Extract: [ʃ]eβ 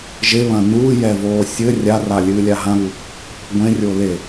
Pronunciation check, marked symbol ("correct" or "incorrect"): incorrect